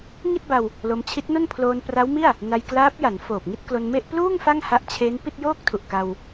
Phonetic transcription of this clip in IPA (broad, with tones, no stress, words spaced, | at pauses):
ŋi˥˩t̚ba˧w | lo˧m t͡ɕʰi˦˥t̚no˥˩n pʰloː˧npra˦˥wmi˥˩a̯ | na˧jklaː˦˥p̚ja˩˦nfoː˨˩p̚ ŋi˥˩t̚klo˧nme˥˩ʔ pluː˥˩ŋ fa˥˩ŋha˦˥ʔt͡ɕʰeː˦˥n pi˥˩t̚joː˥˩k̚tʰu˨˩ʔka˧w